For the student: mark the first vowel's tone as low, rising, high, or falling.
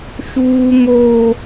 high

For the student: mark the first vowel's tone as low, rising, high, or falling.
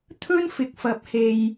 high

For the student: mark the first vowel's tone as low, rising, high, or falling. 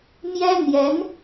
high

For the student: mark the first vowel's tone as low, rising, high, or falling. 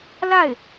falling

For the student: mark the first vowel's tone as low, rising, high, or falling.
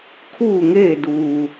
falling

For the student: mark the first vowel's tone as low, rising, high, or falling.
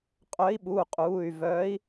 rising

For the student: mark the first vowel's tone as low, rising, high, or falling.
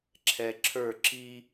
low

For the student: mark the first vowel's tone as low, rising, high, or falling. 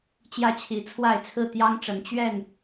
falling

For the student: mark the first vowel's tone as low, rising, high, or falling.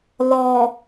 low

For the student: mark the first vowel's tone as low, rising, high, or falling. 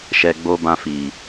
low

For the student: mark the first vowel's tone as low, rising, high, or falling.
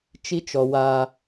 high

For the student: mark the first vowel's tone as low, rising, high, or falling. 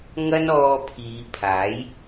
high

